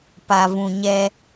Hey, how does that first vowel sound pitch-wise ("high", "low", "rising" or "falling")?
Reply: low